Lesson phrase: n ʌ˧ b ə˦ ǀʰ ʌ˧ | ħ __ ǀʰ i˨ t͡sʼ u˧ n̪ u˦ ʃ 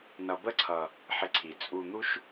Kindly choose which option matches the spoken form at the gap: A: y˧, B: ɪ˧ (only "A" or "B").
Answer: B